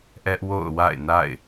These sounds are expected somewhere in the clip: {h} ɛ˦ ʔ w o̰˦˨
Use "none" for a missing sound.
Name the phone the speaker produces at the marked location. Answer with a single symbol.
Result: ʔ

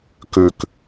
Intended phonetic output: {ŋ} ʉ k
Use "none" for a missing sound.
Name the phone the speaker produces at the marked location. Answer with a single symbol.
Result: k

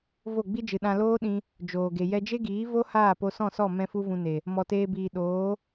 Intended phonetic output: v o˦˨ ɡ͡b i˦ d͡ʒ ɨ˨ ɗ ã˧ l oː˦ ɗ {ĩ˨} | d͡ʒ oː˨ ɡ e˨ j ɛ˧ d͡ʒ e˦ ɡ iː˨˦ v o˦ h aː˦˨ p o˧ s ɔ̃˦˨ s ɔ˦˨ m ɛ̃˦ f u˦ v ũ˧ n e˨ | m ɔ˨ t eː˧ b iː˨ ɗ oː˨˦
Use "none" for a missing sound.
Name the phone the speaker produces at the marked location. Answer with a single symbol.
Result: ĩ˧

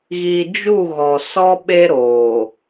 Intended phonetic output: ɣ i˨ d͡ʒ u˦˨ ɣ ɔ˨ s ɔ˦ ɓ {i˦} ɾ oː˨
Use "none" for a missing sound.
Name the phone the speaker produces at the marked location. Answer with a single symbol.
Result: e˦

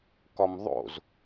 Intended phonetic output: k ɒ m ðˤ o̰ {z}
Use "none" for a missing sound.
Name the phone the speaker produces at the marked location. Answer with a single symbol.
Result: z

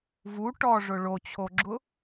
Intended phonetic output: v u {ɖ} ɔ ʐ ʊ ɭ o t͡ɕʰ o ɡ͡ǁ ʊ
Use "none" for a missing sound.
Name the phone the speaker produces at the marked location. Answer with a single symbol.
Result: ʈ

